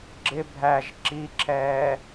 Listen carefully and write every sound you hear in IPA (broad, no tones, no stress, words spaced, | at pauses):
ɡ͡ǁɪ bʱæʒ ǁiǁʰɛː